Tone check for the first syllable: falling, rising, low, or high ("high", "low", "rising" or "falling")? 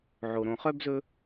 low